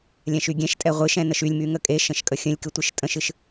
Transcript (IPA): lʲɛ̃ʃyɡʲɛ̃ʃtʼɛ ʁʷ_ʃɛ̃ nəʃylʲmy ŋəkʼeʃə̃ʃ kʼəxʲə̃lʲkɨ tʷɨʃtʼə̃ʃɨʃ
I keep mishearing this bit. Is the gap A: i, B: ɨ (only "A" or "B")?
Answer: B